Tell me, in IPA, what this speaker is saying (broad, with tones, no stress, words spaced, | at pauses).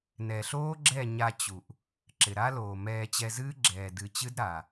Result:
nɛ˨ɬoː˦ɡ͡ǁɛ˦˨ ɲa˧t͡ɕu˨ʔ | ǁɪ˨ɾa˦loː˨mɛː˧ t͡ɕɛ˧zɨː˦ ɡ͡ǁɛː˨ dɨ˨t͡ɕɨ˦d ɾa˨